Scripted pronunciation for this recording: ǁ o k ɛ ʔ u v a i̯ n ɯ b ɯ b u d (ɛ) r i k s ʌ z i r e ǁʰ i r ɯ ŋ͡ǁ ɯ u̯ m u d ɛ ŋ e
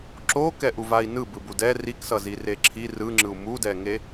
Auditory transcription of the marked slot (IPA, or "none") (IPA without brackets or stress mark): ɛ